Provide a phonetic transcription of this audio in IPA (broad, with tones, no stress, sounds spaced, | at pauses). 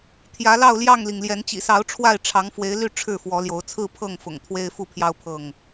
t̪ʰ j ä˨˦ l ɑ˥˨ ʊ̯ l j ɑ˥˨ ŋ l i˩ ŋ l j ɛ˨˦ n t͡ɕ ḭ˨˩ s ɑ˨˦ ʊ̯ ʈ͡ʂʰ w a˥˨ ɪ̯ ʈ͡ʂʰ ɑ˨˦ ŋ f w e˨˦ ɪ̯ l y˥˨ ʈ͡ʂʰ ɻ̩˥˨ f w ɔ˨˦ l j o˨˦ ʊ̯ t͡sʰ ɹ̩˥˨ pʰ ɤ˥˨ ŋ f ʊ̰˨˩ ŋ t̪ʰ w e˦ ɪ̯ f u˥˨ pʰ j ɑ˦ ʊ̯ pʰ ɤ˥˨ ŋ